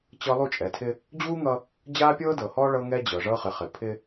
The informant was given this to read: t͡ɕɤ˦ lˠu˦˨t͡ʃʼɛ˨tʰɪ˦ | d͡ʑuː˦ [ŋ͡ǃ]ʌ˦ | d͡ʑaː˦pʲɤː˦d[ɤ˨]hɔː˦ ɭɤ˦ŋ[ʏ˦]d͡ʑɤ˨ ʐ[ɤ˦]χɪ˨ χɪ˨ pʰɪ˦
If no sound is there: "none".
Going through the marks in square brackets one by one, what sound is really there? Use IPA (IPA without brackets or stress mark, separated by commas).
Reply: ŋ, ɤ˨, ɛ˦, ɤ˦